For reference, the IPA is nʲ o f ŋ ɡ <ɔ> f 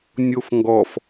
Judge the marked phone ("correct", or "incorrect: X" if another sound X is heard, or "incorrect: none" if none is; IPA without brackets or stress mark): correct